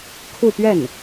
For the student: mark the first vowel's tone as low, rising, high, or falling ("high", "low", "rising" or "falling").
falling